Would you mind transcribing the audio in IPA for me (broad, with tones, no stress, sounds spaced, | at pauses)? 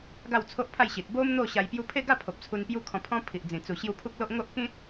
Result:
ɡ a˥˧ w t͡sʰ o˦ ʔ pʰ a˥˧ j ɕ i˨ t̚ b o˦ m n̪ o˥˧ ɕ a˧ j p j u˧ pʰ e˥˧ ɡ a˥˧ pʰ o˨ p̚ t͡sʰ u˧ n p j u˦ kʰ ɔ̃˧ pʰ ɔ̃˦ pʰ i˨ ʔ d͡z ĩ˨˩ t͡s u˨˩ ɕ j u˧ pʰ u˦ k̚ l o˦ ʔ ŋ o˦ ʔ k ĩ˦ t̚